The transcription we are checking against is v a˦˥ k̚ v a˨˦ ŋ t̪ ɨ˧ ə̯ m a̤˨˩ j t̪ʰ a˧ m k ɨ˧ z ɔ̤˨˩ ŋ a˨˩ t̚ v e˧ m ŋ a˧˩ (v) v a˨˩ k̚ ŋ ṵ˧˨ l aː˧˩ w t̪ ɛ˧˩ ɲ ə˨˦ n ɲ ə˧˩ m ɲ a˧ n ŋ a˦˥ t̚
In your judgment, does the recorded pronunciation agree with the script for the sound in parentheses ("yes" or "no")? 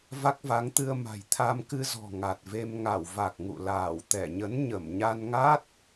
no